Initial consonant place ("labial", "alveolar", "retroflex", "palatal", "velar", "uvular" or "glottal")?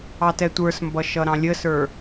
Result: alveolar